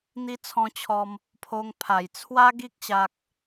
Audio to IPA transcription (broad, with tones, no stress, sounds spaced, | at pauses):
n̪ i˧ t͡sʰ ɔ̃˧ t͡ɕʰ ɔ˧ m | pʰ o˧ ŋ pʰ a˨˩ j t͡sʰ w a˦ ɡ i˦ k̚ ɕ a˦ k̚